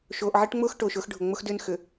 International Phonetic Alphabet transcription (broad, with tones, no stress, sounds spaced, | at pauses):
ʃ oː˨ ʔ ʕ e˦ ʈ ŋ͡m ʊː˦ x ʈ oː˨ ʃ ʊː˦ x ɖʱ ʊ˨ ŋ͡m ʊ˦ x d ʏː˦ n x ʏ˨